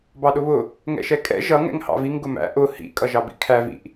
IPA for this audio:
bɑɗʊβʊ | ŋɛ̰ʃɛkʼɛ̰ ʒʌ ŋɛ̰ŋhɑ̰viŋ ɡʊmæ̰ ʔʊ hḭ kʼʌʒɑbḭkʰæ vḭʔ

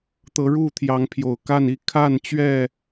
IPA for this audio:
t̪ɤ˨˦ ɻu˥˨t̪ʰjɑ˨˦ŋpʰjo˨˩ʊ̯ka˥˨n i˥˨ kʰa˥˨nt͡ɕɥɛ˥˨

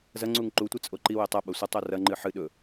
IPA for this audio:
zɐŋ͡ǀuŋ ǃutʷɨ t͡sʼoǃiwe tˤa ɓɐsʷɐtˤo rɐŋ͡ǃɨ ħɨ ɗɵ

